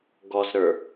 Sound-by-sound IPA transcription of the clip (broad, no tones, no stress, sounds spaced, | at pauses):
ɡ ɔ z ɾ ə˞